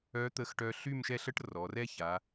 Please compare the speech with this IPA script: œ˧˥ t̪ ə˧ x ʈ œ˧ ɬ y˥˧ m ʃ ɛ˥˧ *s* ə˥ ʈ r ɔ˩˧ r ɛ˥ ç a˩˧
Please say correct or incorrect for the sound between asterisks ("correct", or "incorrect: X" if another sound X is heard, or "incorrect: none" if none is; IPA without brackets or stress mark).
incorrect: ɬ